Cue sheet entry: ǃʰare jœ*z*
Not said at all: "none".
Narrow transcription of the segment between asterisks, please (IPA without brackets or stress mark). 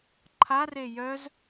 z